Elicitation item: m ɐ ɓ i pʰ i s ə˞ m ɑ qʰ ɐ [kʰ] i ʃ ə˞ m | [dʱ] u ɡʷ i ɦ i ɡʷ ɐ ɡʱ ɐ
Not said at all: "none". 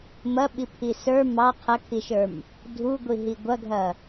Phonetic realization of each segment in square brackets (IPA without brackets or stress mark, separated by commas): kʰ, dʱ